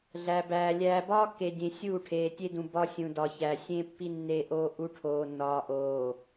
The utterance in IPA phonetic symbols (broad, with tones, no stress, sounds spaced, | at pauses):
ɮ æ˨ b æː˨ lʲ æː˨ b ɒː˦ kː e˨ dʲ ẽ˨ sʲ uː˦˨ ʈʰ eː˨ tʲ e˦ d ũ˨ b ɒ˦ sʲ ũ˨ d ɒ˨ ç æ˨ sʲ ẽ˦ pː i˦ nː e˦ ʔ oː˦ ʔ u˦ ʈʰ oː˨ nː ɒː˨ ʔ oː˨